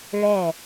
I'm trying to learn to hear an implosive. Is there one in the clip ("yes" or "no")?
no